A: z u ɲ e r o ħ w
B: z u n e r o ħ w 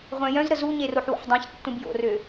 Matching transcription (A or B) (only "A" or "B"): A